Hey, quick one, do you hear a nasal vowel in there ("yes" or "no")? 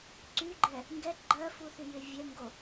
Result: no